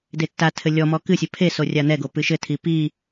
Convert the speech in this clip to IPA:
detːatʰɘ lʲɔmɔ kɨsʲɛ pʰe sorʲan̪ɛɡo pɨʃɘtʰi pi

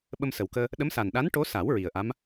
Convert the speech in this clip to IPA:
ɓə˧msə˨˩wkəː˧ | ɗə˧˥msa˨˩n ɗa˧˥nʈo˧˥sa˨˩˦w ɹi˨˩ə̯ʔa˧˥m

